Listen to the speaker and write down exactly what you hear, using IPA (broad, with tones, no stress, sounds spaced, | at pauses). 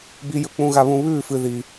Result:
b i˧ j ɵ˧ k͡p ũ˧ ɣ a˧ β ũ˧ β ʉː˥˩ f ɨ˧ ð i˧